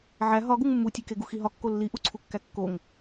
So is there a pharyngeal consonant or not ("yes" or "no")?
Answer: yes